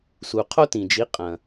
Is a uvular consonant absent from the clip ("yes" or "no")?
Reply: no